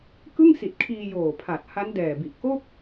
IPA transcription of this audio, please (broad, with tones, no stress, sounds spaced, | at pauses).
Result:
k ɯ˥˩ ŋ s i˨˩ t̚ kʰ iː˧ j oː˨˩ pʰ a˨˩ t̚ h a˦˥ n d ɛː˨˩ b i˨˩ ʔ k o˥˩ k̚